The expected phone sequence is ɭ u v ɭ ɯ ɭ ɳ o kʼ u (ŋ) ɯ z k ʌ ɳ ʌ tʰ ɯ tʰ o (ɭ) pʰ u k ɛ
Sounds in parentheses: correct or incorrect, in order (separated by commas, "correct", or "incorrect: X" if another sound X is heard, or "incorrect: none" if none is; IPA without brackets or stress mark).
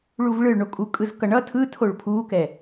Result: incorrect: kʼ, correct